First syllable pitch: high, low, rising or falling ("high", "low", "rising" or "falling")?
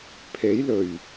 rising